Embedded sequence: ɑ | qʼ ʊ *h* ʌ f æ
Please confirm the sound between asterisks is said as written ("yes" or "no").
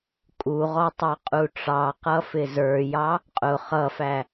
no